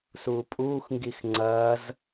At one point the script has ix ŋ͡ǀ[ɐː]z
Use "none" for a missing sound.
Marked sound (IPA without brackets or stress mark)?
ɐː